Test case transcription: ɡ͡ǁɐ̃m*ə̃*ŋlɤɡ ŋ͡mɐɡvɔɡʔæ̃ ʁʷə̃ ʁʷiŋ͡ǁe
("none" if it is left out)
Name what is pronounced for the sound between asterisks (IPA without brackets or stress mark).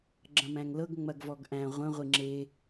æ̃